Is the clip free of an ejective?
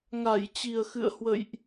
yes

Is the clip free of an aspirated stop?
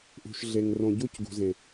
yes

